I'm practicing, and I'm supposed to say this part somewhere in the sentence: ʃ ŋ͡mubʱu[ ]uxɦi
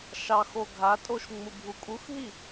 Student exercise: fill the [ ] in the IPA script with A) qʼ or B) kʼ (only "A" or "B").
B